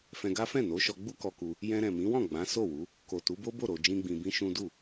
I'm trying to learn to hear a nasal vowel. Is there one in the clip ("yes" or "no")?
yes